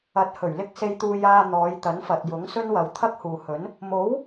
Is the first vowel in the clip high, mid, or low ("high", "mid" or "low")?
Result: low